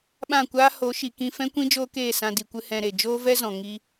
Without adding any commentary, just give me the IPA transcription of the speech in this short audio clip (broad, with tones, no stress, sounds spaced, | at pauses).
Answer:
ɓ ã˦˨ kʷ aː˦ h o˨˦ ʃ i˨ k ĩ˧ f ɛ̃˦ kʷ ĩ˦ d͡ʒ oː˦ k eː˦˨ s ã˧ d i˨ kʷ ɨ˧ h ɛ̃˧ ɾ e˨ d͡ʒ oː˦ v ɛ˦ z ɔ̃˨ ŋ i˦